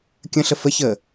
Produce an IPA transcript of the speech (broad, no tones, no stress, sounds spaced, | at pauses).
kʲ ə̃ ɬ ə f ə ç əː